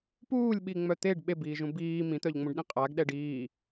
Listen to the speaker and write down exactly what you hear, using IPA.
p uː lʲ ɓ i ŋ͡m œ t̪ e ɖ ɓ e b iː ʒ ũ b iː m ĩ t̪ œ ʎ ŋ͡m ũ ɖ ɗ ĩ qʼ a ɡ ɗ ɛ ɖ iː

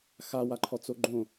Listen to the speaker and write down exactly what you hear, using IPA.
x a w a ǃʰ ɔ t͡s o ɡ͡ǃ õ

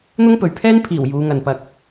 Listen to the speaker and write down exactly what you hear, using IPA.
n̪ ʊ˥ ŋ p ɵ˨ ɥ pʰ ɛː˥ n pʰ iː˨˩ w j uː˨˧ ŋ ɐ˨ n p ɐ˧ k̚

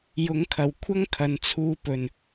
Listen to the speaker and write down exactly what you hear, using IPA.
j ʊ˨˥ ŋ kʰ ɐ˨˩ w kʷʰ ɐ˥ ŋ kʰ ɐ˨ n t͡sʰ uː˧ p ɵ˨˩ n

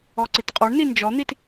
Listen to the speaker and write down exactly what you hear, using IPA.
ɔ ǀ i t qʼ ɔ ɳ n i n d͡ʒ ɔ n̪ i t

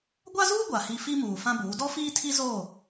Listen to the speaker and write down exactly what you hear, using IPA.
ɡʷ a˦ z uː˦ ɡʷ a˨ h i˦ f i˦ m uː˨ f ã˦ b uː˨˦ d ɔ˦ f iː˦ tʰ i˦ z oː˦˨

